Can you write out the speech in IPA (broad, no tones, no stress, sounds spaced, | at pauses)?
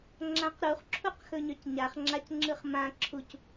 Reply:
ŋ͡ǁ ã q ɾ u χ ǁʰ u q x ɵ ɲ œ c ɲ a χ ŋ͡ǁ a c ŋ͡ǁ ɯ χ m ã ǁʰ u c